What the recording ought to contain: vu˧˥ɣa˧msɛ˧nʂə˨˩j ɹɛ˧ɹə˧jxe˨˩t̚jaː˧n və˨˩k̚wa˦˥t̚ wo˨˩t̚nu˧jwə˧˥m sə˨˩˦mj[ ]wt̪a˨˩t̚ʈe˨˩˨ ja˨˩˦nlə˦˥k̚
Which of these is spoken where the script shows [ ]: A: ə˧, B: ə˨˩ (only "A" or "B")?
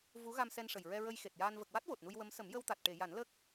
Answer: A